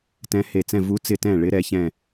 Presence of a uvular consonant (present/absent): absent